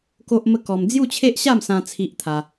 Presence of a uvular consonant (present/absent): absent